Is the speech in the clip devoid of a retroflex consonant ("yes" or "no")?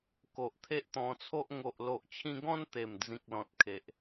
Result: yes